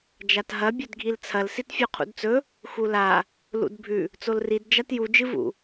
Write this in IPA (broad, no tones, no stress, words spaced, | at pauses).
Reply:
d͡ʒatɦɐ bʲɵdɡʱilt͡sʰɐl sitfʲoqʰṵdt͡sɵ | xula | lṵdbʱʉ | t͡solrid d͡ʒatju d͡ʒɨvṵ